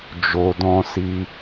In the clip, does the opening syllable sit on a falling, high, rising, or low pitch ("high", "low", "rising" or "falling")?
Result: low